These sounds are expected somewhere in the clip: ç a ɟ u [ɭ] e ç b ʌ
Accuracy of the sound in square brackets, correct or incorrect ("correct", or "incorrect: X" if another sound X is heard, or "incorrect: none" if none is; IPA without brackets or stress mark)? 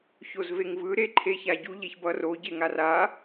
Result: incorrect: ʎ